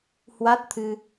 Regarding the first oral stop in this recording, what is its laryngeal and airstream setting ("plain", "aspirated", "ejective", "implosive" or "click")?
plain